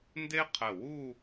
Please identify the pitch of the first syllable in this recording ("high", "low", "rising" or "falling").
high